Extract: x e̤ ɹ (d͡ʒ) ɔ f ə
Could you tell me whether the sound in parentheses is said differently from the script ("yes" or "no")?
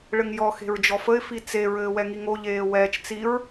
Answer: no